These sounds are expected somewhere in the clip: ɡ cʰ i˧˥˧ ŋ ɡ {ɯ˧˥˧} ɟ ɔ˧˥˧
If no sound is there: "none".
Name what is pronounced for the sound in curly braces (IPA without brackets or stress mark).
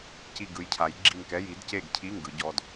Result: ɯ˨˥